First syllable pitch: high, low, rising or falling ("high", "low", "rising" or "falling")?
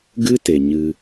high